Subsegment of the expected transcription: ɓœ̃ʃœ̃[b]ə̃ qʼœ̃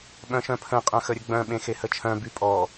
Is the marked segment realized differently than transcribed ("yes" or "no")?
yes